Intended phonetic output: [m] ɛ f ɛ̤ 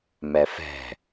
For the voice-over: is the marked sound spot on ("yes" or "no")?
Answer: yes